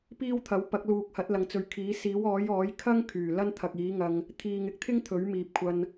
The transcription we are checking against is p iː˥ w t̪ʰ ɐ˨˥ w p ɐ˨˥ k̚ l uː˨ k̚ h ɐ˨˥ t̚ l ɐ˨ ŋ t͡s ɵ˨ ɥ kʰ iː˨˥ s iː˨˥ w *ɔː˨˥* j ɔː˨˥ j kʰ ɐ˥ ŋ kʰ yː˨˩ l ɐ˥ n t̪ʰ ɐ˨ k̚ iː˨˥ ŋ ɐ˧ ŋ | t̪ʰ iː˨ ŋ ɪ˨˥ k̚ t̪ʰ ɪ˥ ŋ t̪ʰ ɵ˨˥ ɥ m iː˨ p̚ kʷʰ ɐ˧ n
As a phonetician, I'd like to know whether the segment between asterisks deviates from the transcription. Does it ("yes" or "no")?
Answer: no